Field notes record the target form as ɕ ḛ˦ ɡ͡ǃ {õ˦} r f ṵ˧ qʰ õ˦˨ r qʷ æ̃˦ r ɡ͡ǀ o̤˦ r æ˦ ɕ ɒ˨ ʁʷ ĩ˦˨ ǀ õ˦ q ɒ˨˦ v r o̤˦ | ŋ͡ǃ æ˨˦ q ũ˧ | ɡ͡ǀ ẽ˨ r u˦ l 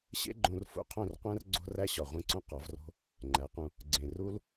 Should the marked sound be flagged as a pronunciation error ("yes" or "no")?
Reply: yes